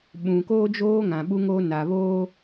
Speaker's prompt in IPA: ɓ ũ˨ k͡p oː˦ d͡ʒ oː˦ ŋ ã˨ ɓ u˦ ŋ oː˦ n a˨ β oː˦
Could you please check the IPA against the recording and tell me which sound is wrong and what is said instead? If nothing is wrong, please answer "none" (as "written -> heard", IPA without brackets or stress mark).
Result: k͡p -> k